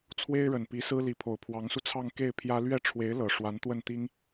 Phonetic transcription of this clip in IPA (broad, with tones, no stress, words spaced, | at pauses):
t͡sʰwe˥ɪ̯ɻə˨˩npi˧˥ sɹ̩˥ li˧˥pʰo˨˩ʊ̯ pʰwɑ˧˥ŋsu˧t͡sʰɑ˥˧ŋ ke˥˩ɪ̯ pʰjä˥ lɥɛ˥˩ ʈ͡ʂʰwe˧˥ɪ̯ lɤ˨˩ ʂwa˧˥nt̪wə˥˩nt̪i˥ŋ